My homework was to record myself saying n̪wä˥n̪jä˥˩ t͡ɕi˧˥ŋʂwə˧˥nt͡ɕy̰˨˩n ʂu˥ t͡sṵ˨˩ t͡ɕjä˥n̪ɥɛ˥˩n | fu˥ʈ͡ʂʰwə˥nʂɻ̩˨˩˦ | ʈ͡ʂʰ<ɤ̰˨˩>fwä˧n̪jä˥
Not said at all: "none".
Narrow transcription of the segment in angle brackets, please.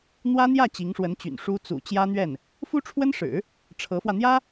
ɤ˧˥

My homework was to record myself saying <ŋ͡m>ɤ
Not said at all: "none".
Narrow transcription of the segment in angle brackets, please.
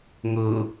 ŋ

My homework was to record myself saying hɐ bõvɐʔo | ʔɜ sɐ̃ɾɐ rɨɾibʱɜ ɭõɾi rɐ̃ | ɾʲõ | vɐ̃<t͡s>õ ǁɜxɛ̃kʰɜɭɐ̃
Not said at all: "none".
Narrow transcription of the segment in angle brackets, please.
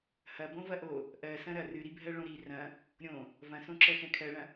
s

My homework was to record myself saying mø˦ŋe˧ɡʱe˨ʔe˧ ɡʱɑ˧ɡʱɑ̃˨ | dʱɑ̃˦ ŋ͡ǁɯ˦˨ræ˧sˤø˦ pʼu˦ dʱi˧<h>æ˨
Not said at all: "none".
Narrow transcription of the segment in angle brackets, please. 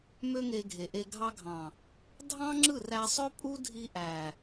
ʔ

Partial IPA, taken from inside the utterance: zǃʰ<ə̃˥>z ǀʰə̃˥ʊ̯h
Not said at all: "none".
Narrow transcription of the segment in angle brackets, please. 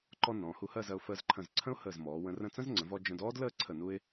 ə̃˧˩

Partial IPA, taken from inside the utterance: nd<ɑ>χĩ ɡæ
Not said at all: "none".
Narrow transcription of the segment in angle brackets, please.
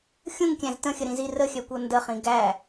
ə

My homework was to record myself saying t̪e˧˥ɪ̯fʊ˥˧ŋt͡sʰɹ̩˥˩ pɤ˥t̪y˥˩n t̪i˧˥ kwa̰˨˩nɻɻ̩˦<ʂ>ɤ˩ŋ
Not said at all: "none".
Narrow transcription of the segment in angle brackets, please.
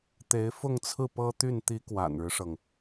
ʂ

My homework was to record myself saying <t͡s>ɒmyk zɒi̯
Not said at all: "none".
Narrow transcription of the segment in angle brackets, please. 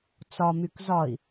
t͡s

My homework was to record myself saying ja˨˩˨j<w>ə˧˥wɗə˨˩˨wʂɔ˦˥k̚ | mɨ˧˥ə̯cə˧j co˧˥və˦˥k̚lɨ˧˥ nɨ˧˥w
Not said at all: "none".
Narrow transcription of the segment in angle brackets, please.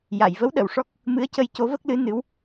v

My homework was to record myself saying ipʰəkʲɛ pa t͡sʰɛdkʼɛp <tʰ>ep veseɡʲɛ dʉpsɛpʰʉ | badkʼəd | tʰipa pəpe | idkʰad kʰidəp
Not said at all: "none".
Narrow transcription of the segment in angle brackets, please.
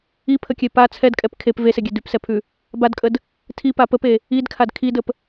kʰ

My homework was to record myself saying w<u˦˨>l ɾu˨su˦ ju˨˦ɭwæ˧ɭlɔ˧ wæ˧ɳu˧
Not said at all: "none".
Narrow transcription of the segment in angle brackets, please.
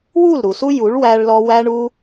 u˦˨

